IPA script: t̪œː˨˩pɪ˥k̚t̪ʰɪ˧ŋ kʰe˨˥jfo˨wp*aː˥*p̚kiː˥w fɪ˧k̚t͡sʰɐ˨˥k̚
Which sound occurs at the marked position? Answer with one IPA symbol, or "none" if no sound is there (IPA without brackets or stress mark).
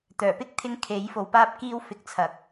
aː˥